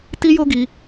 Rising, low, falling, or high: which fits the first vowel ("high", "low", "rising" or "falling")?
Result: high